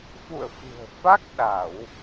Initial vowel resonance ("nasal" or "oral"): oral